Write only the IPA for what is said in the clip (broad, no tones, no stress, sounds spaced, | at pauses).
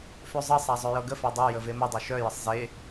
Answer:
f ø zˤ ɤ sˤ a zˤ œ j ɤ ɡ ə f a dˤ ø j ə v e m ə dˤ œ ʃ œ j ə sˤ z e